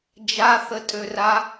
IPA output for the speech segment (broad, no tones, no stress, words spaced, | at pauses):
d͡ʒaθətʼøra